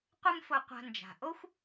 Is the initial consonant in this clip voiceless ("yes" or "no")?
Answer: yes